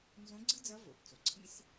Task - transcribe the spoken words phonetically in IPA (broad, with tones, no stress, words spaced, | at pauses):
nzõ˧˥ɡ͡ǀɯ˥d͡zʌ˧˥ vo̰˩pt͡so˩ǀʰḭ˥s